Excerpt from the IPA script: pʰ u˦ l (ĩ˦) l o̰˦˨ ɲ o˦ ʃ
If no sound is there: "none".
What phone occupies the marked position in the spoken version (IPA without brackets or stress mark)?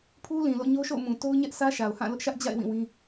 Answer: ĩ˨